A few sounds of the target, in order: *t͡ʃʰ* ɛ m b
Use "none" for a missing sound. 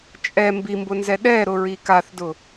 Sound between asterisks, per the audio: t͡ʃʼ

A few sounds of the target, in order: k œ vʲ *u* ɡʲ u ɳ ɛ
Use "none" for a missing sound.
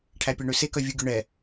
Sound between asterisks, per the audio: u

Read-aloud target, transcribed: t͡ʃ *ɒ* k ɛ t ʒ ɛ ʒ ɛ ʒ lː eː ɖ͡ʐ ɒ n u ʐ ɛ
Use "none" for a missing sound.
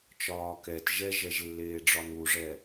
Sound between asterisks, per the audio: ɒː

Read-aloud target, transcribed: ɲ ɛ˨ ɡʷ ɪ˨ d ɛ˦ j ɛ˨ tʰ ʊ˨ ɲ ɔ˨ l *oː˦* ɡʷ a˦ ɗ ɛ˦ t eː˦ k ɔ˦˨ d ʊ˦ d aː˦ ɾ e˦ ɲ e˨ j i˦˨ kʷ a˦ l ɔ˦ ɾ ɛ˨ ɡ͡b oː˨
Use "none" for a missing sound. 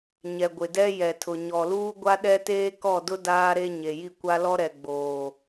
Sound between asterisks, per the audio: uː˦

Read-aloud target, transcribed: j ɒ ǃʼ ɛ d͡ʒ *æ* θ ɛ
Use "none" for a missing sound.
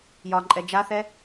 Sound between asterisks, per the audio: a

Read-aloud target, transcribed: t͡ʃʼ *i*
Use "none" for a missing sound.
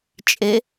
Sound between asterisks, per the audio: e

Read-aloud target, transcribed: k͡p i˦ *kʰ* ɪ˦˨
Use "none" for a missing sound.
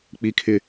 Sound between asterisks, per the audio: kʰ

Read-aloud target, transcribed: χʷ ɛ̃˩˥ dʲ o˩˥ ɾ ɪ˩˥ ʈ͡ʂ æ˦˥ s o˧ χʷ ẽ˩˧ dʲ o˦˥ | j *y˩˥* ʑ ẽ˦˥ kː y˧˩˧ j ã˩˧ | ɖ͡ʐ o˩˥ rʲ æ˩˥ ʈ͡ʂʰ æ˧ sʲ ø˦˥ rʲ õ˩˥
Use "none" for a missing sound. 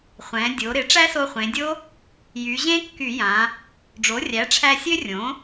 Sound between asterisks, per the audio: y˩˧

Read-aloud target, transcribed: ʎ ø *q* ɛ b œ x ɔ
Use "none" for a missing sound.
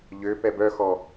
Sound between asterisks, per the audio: p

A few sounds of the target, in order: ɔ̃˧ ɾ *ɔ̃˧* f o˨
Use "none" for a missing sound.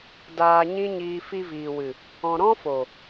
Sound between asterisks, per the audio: ɔ̃˦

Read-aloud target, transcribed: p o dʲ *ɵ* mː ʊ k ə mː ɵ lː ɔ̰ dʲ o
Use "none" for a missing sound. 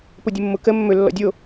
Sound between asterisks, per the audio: ʊ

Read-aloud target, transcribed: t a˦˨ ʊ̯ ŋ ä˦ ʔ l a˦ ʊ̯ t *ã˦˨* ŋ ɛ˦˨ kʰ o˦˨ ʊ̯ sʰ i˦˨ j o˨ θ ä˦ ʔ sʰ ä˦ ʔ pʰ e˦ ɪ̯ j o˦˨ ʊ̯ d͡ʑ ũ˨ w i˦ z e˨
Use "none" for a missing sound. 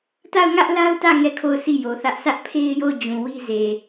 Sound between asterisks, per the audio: ä˦˨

